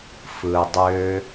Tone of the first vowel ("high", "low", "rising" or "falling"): low